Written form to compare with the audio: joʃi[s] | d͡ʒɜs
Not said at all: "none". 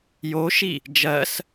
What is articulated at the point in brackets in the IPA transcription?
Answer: none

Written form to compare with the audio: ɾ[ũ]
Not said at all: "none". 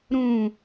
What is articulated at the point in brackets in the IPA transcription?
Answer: ũ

